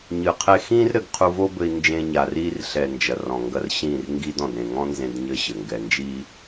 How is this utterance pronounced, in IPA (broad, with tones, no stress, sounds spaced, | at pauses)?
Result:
ɲ ɨ˨ qʰ e˧ x ĩː˦ r ɾ ɘ˧ ɡ qʰ u˧ v o˦ b ɘ˧ i̯ n d͡ʒ ẽ˧ ɲ a˨ r iː˧ r ɬ ɛ˨ n d͡ʒ ɐ˨ r ɔ̃˨ ŋ ɡ ɐ˧ r ɕ ĩː˦˨ r ŋ ɡ i˦ d ɔ̃˨ d ɾ ẽ˨ ŋ ɔ̃˦ n z ẽ˧ d ɲ ɘː˦ ɕ ɘ˨ ŋ ɡ ɛ˧ n d͡ʒ iː˦